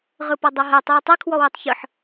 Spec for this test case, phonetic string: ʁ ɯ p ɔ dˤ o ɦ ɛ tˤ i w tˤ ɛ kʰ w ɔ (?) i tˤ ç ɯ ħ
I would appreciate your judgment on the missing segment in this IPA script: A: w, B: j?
A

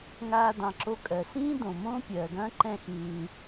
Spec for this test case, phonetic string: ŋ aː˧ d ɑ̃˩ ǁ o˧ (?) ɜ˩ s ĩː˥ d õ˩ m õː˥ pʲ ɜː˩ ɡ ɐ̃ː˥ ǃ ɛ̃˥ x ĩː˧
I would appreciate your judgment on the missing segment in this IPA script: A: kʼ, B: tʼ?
A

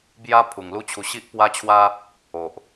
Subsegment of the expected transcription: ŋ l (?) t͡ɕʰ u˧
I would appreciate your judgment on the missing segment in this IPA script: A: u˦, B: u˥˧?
A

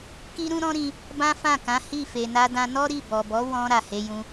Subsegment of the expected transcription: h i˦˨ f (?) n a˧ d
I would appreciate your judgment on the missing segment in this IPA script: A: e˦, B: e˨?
B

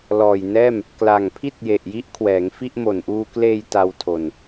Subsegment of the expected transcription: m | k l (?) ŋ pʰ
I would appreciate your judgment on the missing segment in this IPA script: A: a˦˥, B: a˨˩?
B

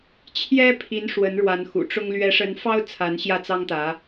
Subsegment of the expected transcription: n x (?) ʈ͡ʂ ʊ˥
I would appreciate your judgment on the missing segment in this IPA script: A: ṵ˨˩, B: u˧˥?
A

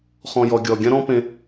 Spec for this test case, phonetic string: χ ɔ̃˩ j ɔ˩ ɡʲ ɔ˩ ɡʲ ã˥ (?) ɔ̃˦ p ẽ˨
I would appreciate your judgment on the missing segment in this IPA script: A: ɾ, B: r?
A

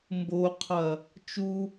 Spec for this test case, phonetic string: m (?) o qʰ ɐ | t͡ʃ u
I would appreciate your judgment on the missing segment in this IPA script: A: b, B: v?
A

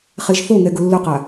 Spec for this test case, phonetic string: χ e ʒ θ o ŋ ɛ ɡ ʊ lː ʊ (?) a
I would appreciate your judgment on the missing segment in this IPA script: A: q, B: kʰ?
A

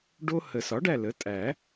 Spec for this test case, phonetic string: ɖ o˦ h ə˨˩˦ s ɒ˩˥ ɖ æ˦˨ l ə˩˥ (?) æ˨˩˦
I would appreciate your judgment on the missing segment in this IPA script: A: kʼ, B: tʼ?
B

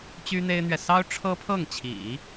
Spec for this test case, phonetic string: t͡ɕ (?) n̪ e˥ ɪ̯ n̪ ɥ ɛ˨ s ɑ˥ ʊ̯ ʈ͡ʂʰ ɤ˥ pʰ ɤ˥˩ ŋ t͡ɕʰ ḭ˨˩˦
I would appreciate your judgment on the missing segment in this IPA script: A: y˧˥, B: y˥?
B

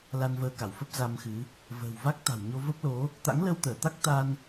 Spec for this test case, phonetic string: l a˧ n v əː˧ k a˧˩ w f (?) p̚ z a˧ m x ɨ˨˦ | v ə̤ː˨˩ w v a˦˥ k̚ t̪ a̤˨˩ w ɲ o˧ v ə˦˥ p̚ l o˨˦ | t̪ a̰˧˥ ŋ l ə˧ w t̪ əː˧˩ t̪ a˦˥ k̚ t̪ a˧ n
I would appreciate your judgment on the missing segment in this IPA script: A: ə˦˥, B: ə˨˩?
A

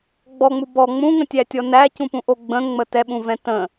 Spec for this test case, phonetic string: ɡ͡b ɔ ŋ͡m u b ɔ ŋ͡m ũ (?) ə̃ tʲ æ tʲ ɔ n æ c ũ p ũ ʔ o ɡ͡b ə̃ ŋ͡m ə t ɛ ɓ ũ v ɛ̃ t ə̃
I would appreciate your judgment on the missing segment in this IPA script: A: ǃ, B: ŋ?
B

